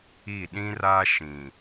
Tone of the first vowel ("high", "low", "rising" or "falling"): falling